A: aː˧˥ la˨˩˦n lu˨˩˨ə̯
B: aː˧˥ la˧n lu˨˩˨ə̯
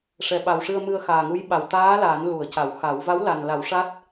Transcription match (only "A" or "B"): A